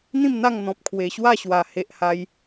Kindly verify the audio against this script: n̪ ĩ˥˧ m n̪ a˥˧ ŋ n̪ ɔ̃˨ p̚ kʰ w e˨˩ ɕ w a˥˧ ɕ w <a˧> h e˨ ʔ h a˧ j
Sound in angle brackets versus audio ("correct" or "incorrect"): incorrect